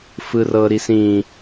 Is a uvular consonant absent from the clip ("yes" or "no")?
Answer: yes